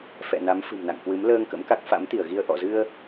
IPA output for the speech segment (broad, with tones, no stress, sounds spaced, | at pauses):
f ɛ̰˧˨ n a˨˦ m f ɨ̤˨˩ m n a̰˧˨ ŋ k w ɨ˨˦ m l əː˧ ŋ k ə̰˧˥ m k a˦˥ k̚ f a̰˧˥ m t̪ i˧˩ ə̯ ɣ i˧ ə̯ ʔ ɔ̰˧˨ z ɨ˧ ə̯